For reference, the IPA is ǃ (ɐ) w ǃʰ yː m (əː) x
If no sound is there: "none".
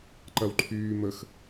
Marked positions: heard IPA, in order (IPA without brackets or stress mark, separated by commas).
ɐ, ə